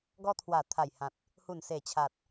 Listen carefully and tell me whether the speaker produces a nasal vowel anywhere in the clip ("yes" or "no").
yes